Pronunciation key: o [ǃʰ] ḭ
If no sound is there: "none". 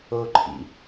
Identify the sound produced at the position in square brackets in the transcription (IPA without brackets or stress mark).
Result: ǃʰ